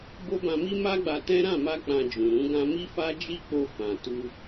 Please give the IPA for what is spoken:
b o˦ b ã˧ m i˦ m a˦ ɡ͡b a˧ t ɛ̃˦ ɾ ã˦˨ m a˧ k͡p ã˧ d͡ʒ ũ˨ ɾ ũ˨˦ ɡ ã˧ m i˦ f a˦ d͡ʒ i˦ k͡p o˧ f ã˨ t u˧

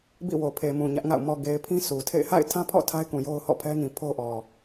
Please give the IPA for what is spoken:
b ḭ˦˨ w o˨ pʰ e˨ m ũ˨ ɲ ä˦ ʔ ŋ a̰˦˨ ʊ̯ m ɔ˨ ɡ e˨ ɪ̯ pʰ ĩ˦ sʰ u˨ tʰ ḛ˦˨ ɪ̯ h a̰˦˨ ɪ̯ tʰ ã˦ pʰ ɔ̰˦˨ tʰ a˦ ɪ̯ k ũ˨ j o˦ ʊ̯ h ɔ̰˦˨ pʰ ɛ˦ ŋ ĩ˨ pʰ o˦ ʔ ɔ˨

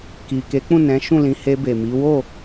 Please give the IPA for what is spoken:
k i˨ k e˨˦ k͡p ũ˦˨ n ɛ̃˨˦ ʃ ũ˦˨ l ĩ˨˦ h e˧ b e˨ m i˨˦ w o˦˨

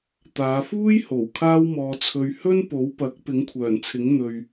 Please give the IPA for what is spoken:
t̪ aː˨˧ f uː˥ j h o˨˩ w kʰ aː˥ w m ɔː˧ t͡sʰ ɵ˧ ɥ h ɵ˥ n p o˨˥ w p ɐ˨˥ k̚ p ɪ˨˥ ŋ kʷʰ œː˨˩ n t͡sʰ ɪ˨˥ ŋ n̪ ɵ˨ ɥ

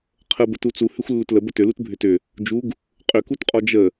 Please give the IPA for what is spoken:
qʰ ə b ə t u t͡s u h ʏ xʷ lː u t l ə b ə t ʏ l u t bʱ ʏ t ʏ | d͡ʒ u ɡ | qʼ ʏ k u t qʼ ɔ d͡ʒ ə

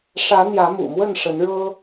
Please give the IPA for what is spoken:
ʂ ä˨˦ n̪ j ä˨˦ m ṵ˨˩ m w ə˥˨ n ʂ ə˨˦ n ɻ ɤ˦

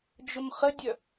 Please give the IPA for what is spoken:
d͡ʒ ʊ m χ ə dʲ œ

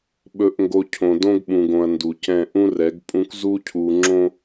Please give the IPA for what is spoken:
ɓ ɵ˨ ʔ ŋ ɡ o˨ cʰ õ˨ d õ˦ ɡ ɓ ũ˨ ɡ õ˨ ɐ̯ n d u˨ c ɛ̃˦˨ ʔ ũ˦ r ɛ˨˦ ɡ pʼ ũ˦ k z u˦ cʰ u˨ ŋ͡ǁ õ˦

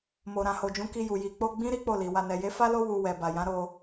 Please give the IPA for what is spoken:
m o˨ ɾ ã˨ h o˨ d͡ʒ ũ˨˦ k i˧ j u˨ j i˨ k͡p o˧ ɡ͡b ĩ˦ ɾ i˦ k͡p o˦˨ l i˨ w a˧ n ɛ˨ j e˨˦ f a˦ l o˦ w u˧ w ɛ˨ b a˨ j ã˨˦ ɾ o˧

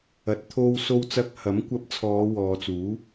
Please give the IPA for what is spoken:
ɐ˨ t̚ t̪ʰ o˧ w s o˧ w t͡s ɐ˧ k̚ h ɐ˨˥ m kʷ ɐ˧ p̚ t͡sʰ ɔː˨˧ w ɔː˨ t͡s uː˨˥

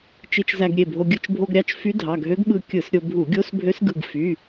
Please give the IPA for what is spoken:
t͡ʃ i˧ t͡ʃ z æ˧ ɡ ɾʲ e˩˧˩ bʱ o˧ ɡʲ ɯ˧ t͡ʃ bʱ o˧ ɡ ɾʲ ɑ˧ t͡ʃ f y˧˥ dʱ ɑ˩˧˩ ɡʱ ø˧˥ ɡ ɓ ɯ˧ kʲ ɯ˧˩˧ s ɾʲ o˧ bʱ u˧˩˧ ɡʲ o˧˥ s bʱ ø˧˥ s ɡ ɯ˩˧˩ ɡ f y˩˧˩

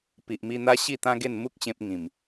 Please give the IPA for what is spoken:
p i˨ ʔ m i˧ n̪ a˦ ɕ i˥˧ t̪ ã˦ ɡ e˥˧ n m u˦ k̚ ɕ ẽ˦ p̚ ŋ ĩ˨˩ m

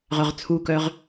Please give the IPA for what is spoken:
ʁ œ ʁ t͡sʰ u k œ ʁ

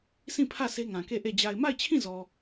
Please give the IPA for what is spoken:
s ĩ˦˨ pʰ ä˦˨ sʰ e˦ ŋ ã˨ k e˦˨ ʔ e˦˨ d͡ʑ a˨ ɪ̯ m a˦˨ ɪ̯ t͡ɕʰ ĩ˦˨ z ɔ˨

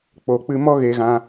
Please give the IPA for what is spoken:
k͡p o˨ k͡p ɨ˧ m ɔ˦ ɣ e˧ ɣ ã˧

